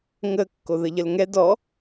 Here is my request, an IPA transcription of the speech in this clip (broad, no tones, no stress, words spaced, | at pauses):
ŋə kːoðəʎəlŋɛ dɔ